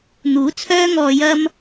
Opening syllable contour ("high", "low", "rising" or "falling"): rising